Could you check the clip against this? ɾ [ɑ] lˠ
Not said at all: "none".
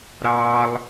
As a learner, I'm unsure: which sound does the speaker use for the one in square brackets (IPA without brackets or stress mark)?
ɑ